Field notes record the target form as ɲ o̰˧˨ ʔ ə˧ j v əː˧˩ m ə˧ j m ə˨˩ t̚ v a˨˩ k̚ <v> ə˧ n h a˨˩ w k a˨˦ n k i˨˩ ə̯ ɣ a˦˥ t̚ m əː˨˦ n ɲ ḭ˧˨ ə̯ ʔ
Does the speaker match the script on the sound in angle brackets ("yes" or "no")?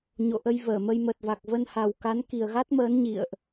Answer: yes